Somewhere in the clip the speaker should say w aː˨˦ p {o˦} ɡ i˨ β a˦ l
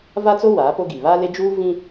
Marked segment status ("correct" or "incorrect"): correct